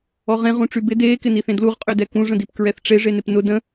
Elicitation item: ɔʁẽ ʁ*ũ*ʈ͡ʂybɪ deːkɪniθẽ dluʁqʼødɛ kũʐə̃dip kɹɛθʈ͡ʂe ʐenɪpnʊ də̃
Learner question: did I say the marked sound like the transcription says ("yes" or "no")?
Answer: yes